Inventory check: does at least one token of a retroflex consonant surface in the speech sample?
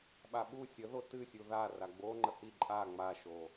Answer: no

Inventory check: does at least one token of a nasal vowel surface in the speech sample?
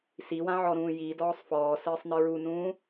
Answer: yes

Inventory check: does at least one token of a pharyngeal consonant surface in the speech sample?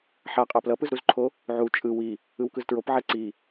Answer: yes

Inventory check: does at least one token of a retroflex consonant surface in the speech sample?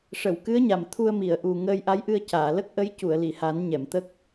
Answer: yes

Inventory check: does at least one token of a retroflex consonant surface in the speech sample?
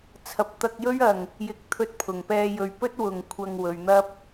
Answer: no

